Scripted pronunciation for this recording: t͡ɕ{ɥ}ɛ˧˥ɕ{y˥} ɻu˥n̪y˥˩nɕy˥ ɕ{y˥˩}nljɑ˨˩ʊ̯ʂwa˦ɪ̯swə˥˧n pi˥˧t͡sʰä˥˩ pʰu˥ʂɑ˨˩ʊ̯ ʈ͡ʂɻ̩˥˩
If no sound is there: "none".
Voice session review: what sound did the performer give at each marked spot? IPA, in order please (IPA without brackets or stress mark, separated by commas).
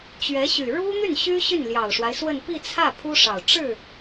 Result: ɥ, y˨˩, y˥˩